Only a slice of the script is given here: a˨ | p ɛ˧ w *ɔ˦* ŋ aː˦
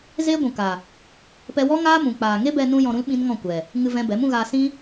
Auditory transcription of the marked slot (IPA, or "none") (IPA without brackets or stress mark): ɔ˦